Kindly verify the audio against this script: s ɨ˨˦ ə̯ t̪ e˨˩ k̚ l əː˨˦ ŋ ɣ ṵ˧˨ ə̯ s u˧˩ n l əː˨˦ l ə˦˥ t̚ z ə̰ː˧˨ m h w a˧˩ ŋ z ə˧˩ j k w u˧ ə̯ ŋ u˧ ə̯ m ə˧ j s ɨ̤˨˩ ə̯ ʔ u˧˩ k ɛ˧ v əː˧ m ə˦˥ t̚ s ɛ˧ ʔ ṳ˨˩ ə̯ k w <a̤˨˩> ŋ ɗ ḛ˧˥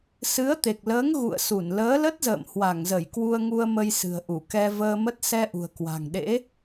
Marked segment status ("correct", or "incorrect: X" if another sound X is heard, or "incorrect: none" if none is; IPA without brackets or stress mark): correct